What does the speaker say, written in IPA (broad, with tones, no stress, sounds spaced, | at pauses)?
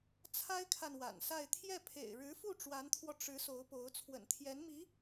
t͡sʰ a˥ ɪ̯ kʰ a˨ n w a̰˨˩ n s a˥˧ ɪ̯ t̪ʰ j ɛ˥˩ pʰ ḛ˨˩ ɪ̯ ɻ ɻ̩˧˥ f u˥˩ ʈ͡ʂ w a˧˥ n t̪ʰ w ɔ˧ ʈ͡ʂ ɻ̩˧˥ s o˧˥ ʊ̯ p o˧˥ ʊ̯ t͡sʰ w ə̰˨˩ n t̪ʰ j ɛ˧˥ n m i˧˥